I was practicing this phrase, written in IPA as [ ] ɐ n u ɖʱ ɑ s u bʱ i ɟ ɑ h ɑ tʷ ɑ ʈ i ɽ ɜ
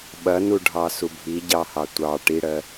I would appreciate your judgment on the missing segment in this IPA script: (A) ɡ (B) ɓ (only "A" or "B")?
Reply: B